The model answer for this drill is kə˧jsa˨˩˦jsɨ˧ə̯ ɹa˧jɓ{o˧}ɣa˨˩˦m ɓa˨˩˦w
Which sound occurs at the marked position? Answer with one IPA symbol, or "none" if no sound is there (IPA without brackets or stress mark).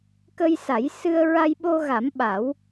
o˧